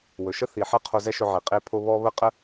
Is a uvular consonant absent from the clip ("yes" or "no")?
no